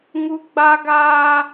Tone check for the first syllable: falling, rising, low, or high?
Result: high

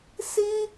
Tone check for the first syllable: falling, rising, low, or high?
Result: high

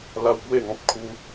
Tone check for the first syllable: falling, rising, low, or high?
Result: high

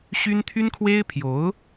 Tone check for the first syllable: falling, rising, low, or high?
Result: high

